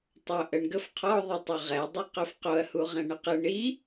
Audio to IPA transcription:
tˤ o ʔ ə ɳ ɡ ə f qʰ ɔ ðˤ i tˤ œ ʁ ɛ dˤ e q œ f q o ɐ̯ h u ʁ ɛ̃ ɳ ə q ə ɳ i

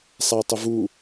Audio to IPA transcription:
sˤ æ tˤ ɪ v u

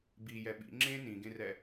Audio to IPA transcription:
b i j ɛ ɓ ḭ ŋ͡ǁ ẽ n ĩ ɡ ẽ r ɛ

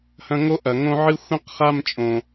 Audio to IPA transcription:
h ɐ̃˧ ŋ o˦ ʔ ɐ˨ ŋ õ˦ ʕ ɨ˦ xʷ ĩ˦ q χ a˦ m t͡ʃʼ õ˨

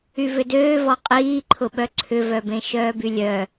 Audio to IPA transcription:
y v ʏ d øː v ɔ qʼ iː ǃʰ ʊ ɓ œ ǀʰ ʏ v œ b ẽ ʃ œː b y lʲ œ

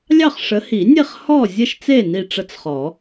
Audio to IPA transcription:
lʲ ɑ˥˨ χ ʂ ə˨˦ h i˨˩˦ nʲ e˥˨ χ h ɔ˥˨ zʲ ə˥˨ ʃ t͡s e˥˨ n i˥˨ ʈ͡ʂ ə˦˥ t͡s χ ɔ˨˩˦

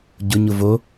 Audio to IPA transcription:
ɟ ʊ ɲ ʊ v o

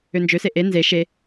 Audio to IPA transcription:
ø n d͡ʒ ø s e ʔ e n z e ʃ e

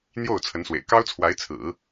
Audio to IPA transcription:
n̪ j o˥˩ ʊ̯ t͡sʰ ə˧˥ n s w ḛ˨˩ ɪ̯ k ɑ˥ ʊ̯ t͡sʰ w a˧˥ ɪ̯ t͡sʰ ɹ̩˨˩˦

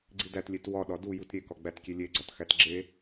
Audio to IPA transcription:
ɡ͡ǀ i d æ t lʲ e t w ɒ ɗ ɒ d u j u t ɾʲ e k ɒ ɡ͡b æ t kʲ e lʲ e ɡ͡ǀ ɒ t x æ t ɡ͡ǁ e

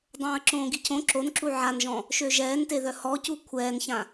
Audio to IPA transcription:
dˤ õː ə̯ ǁ õː ɡ i cʰ õ ǁ o n ǁ u ʕ a n ʒ ɔ̃ | ʃ ø ʒ ɛː n t e ð œ h ɔ c u kʷʰ ɛː n ç ã

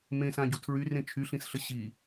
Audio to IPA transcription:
m ẽ s ã ɟ u tʰ ɹ y r ẽ t͡ʃʰ y ɬ ĩ s ɬ ə ɕ i

